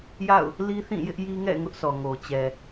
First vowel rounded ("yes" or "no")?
no